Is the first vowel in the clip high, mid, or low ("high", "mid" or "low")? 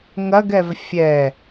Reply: low